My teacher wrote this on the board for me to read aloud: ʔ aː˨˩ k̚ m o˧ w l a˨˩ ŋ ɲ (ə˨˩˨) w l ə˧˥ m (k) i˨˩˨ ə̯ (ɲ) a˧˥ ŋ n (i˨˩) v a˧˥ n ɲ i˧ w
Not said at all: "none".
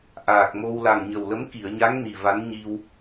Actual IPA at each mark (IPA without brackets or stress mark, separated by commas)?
ə˨˩, k, ɲ, i˨˩